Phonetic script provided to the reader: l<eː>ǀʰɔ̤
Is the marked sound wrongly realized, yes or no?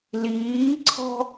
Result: yes